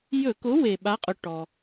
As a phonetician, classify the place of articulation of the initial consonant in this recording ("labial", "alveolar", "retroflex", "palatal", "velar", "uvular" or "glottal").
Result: palatal